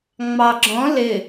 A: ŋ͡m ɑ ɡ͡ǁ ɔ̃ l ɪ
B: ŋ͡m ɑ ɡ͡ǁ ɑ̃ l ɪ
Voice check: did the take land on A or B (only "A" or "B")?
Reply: A